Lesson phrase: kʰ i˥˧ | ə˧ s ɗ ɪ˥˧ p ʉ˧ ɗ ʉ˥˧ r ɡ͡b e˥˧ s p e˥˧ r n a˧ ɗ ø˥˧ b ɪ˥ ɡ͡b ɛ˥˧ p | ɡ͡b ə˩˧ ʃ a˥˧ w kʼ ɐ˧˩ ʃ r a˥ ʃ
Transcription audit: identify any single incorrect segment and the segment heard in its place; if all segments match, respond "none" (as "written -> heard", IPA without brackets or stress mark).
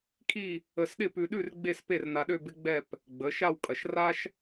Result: none